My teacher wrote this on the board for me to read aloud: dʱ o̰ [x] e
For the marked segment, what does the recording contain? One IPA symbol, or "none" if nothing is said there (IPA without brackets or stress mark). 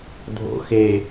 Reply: x